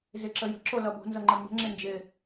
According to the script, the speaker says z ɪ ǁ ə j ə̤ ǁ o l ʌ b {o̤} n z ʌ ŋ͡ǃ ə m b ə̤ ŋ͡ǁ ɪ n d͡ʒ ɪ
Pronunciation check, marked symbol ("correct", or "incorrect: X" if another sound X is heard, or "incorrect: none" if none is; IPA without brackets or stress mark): correct